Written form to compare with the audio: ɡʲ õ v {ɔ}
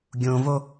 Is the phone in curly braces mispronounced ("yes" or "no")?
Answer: yes